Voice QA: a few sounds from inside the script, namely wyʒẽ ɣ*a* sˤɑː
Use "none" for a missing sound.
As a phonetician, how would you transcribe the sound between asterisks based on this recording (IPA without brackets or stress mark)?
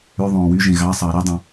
ɑ